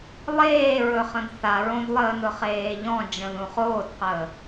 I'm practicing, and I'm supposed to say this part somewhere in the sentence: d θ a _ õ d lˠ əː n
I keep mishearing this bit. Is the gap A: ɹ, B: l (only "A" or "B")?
A